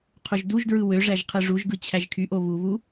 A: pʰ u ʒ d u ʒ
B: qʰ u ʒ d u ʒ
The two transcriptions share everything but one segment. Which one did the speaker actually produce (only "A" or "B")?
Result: B